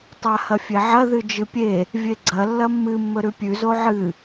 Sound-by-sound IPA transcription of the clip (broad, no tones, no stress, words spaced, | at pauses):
tˤahɐfʲeʕɐ ðɨd͡ʒɨpʲe | vʲeɡ͡ǀɐ lːɐmːɨ mːɵɾʉpʲʉ zoʕɨ